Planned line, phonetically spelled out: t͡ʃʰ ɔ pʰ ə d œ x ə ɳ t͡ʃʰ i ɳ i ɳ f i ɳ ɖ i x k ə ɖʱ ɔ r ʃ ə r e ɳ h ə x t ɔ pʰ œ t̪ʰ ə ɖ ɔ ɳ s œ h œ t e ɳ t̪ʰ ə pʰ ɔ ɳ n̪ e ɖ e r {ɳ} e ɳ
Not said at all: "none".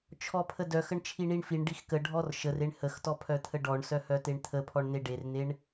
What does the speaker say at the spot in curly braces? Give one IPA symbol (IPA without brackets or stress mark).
n̪